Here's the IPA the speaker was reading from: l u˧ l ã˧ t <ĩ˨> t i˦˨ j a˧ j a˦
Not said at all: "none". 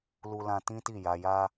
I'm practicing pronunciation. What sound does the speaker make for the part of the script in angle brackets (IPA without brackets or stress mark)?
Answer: ĩ˦